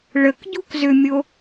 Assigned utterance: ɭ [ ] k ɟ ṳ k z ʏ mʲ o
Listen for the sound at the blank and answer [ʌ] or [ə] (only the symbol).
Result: ə